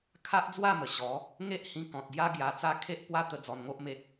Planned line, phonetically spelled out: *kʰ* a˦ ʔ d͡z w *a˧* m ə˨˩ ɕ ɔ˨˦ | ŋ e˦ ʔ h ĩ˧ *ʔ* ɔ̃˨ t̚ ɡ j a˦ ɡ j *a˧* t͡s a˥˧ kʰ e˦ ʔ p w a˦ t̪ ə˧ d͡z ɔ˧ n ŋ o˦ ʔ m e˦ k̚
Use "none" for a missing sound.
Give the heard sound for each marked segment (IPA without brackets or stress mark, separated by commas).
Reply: kʰ, a˥˧, k, a˧